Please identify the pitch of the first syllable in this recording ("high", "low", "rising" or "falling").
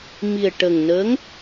low